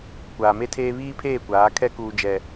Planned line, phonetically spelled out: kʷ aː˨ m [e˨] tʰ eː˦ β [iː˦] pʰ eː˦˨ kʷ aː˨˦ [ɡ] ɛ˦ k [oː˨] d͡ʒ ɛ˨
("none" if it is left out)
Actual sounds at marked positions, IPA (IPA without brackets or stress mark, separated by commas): e˦, iː˦, kʰ, uː˨